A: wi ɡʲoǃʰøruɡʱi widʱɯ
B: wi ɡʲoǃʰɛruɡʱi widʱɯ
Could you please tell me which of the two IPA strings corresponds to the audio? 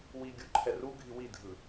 B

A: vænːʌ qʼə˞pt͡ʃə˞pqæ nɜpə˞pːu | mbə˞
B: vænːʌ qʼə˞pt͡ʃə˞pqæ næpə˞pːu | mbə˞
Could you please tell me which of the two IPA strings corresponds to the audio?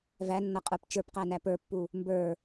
B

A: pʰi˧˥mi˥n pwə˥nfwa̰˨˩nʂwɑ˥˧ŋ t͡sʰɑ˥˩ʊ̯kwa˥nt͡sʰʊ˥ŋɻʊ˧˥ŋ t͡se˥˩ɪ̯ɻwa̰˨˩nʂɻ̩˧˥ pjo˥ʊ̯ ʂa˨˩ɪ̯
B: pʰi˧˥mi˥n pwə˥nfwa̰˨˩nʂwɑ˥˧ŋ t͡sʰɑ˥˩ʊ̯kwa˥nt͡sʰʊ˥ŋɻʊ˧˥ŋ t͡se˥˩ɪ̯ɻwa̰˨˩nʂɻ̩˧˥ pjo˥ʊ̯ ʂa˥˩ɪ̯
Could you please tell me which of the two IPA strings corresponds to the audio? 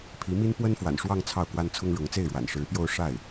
B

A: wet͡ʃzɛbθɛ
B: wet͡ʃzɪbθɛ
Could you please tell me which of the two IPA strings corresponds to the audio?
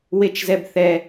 A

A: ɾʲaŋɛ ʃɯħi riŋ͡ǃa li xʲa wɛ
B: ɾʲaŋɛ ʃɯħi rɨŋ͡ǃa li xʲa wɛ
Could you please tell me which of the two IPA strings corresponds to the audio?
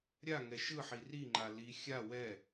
A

